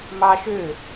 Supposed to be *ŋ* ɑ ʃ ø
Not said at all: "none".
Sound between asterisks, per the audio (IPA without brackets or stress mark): m